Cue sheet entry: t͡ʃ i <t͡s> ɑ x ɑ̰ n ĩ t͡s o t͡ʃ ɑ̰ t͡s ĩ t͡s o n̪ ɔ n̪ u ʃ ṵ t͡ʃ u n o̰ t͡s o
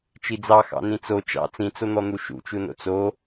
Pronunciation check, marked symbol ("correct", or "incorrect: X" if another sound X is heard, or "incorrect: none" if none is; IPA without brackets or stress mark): incorrect: d͡z